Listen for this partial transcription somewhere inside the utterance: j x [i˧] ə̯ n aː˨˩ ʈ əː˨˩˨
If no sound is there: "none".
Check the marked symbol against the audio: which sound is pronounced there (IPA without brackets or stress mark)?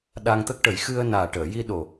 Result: ɨ˧